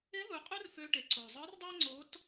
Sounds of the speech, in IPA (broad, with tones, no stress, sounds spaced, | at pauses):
ɪ˧˥ ð u˩˧ qʼ u˥ r f ø˧ ʈ e˩ ǀ o˩ zˤ ɯ˧˥ r dˤ e˥ ŋ͡ǀ o˧˥ t